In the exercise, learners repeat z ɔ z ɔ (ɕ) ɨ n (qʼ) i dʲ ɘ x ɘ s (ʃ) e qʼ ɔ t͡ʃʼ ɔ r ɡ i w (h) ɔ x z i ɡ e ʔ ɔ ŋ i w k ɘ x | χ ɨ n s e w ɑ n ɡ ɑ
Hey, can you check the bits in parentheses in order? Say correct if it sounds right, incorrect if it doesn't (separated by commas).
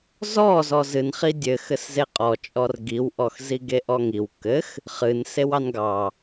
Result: incorrect, incorrect, incorrect, incorrect